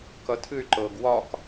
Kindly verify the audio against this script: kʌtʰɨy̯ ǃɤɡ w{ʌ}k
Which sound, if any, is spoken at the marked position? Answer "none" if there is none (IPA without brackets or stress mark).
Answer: ɒ